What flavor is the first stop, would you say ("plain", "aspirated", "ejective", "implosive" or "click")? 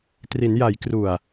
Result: plain